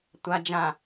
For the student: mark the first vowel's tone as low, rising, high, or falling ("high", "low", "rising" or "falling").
low